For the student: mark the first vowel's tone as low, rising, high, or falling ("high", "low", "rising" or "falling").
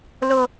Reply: low